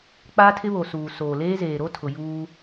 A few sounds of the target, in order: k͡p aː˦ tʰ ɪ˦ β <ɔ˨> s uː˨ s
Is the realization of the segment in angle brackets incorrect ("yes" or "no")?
yes